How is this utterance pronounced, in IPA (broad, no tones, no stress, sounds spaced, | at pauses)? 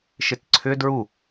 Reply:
ʃ ɪ t ǀʰ ʏ d ɹ u